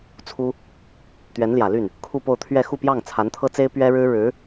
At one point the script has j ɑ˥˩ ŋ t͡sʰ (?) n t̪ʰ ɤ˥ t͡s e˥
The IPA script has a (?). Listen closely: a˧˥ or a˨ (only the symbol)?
a˧˥